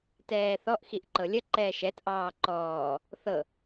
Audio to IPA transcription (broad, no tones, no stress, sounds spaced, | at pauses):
t ɛː θ ɔ ʔ x i ʔ ǃ ɤ lʲ ə ǃ ɛː ʃ ɛ t ʔ ɑː ǃ ɔː | θ ɤ